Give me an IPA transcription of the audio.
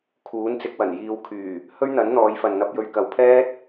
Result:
kʰ uː˨˥ n t͡s ɪ˨˥ k̚ w ɐ˨˩ n j iː˧ w kʰ yː˨˩ | h ɵ˥ ɥ n̪ ɐ˨˥ n n̪ ɔː˨˧ j f ɐ˨ n n̪ ɐ˧ p̚ j ɵ˧ ɥ k ɐ˨ w pʰ ɛː˥ t̚

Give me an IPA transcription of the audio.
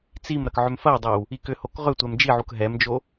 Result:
t͡s i m ɾ ɐ k ʕ ʏ m f ɐ w dˤ ɛ w | i k ʏ h o k ʁ ʏ tʷ ɛ m d͡ʒ i ʕ u k ɦ ɛ m d͡ʒ o

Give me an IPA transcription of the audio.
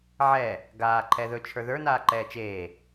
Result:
ʕ ɛ | ɡ aː ǃʰ ɛ ð ɵ t͡ʃʰ ə˞ ð ə˞ n aː ǃ ɛː t͡ʃ eː

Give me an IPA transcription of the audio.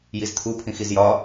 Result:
j i z t̪ʰ u pʰ ĩ x i z j ɒ

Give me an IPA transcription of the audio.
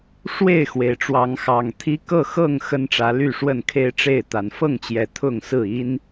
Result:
ʂ w e˥˨ ɪ̯ x w e˩ ɪ̯ ʈ͡ʂ w ɑ˨˦ ŋ x ɑ˨˩ ŋ t̪ʰ i˦ k ɤ˥˨ x ɤ˥˨ ŋ x ə˦ n ʈ͡ʂ ä˨˦ l y˥˨ ʂ w ə˥˨ n kʰ e˦ ɪ̯ ʈ͡ʂ e˥˨ ɪ̯ t̪ a˨˦ n f ɤ˥˨ ŋ t͡ɕ j ɛ˨˩ t̪ʰ ʊ˥˨ ŋ s ɹ̩˥˨ i˦ n

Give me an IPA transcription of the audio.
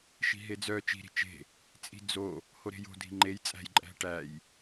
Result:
ʃ i̤ ɦ e d͡z œ t͡ʃ i̤ ɾ i̤ t͡ʃ e̤ | t͡sʼ i̤ d͡z o | h o ɾ e̤ j o̤ dʱ i̤ ŋ͡ǃ e j t͡sʼ æ̤ j ǃʼ æ̤ ʈ æ j

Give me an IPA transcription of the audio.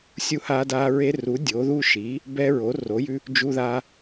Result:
sʲ u˦ h aː˦ d aː˦ ɹ e˦ r u˨˥ dʲ o˨˥ ð u˦ ʃ iː˨˥ | b ɛ˦ ɹ o˨˥ r o˨˥ j ʉ˦ | d͡ʒ u˦ ð aː˦

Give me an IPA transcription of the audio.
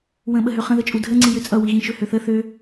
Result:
w ə̃ ɓ ə ɦ ø χ ə̃ ð ə t͡ʃʼ u dʱ ə ŋ͡ǀ i j ø t͡sʼ ʌ w i ɣ ĩ ʃ ø h ø θ ə θ ø

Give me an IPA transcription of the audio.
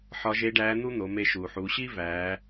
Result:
ħ ɒ˧˥ ʒ e˧˥ ɖ æː˧˥ n̪ u˥ n̪ o˩˧ m e˧ ʃ u˩ ħ uː˩˧ ɕ i˥ v æː˩˧

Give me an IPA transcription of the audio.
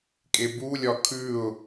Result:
kʼ e b u lʲ ɒ kʰ ʉ ʊ̯

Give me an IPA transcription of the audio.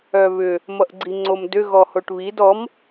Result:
œ β ʏ | m ʌ ʔ ɡ͡ǀ i ŋ͡ǀ o m d ʏ ɣ ɔ h o ʈ β i d ɔ m

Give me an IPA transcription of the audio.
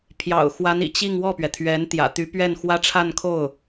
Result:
pʰ j ɑ̰˨˩ ʊ̯ x w a˧˥ n ḭ˨˩ t͡ɕ i˥˧ ŋ w ɔ˥˩ p ɥ ɛ˩ t̪ʰ ɥ ɛ˧˥ n t̪ j ä̰˨˩ t̪ y˧˥ p ɥ ɛ˥˩ n x w ä˥ ʈ͡ʂʰ a˥˧ n kʰ o˥˩ ʊ̯

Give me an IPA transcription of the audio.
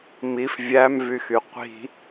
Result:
m i f vʲ æ m v y x y qʷ i̤

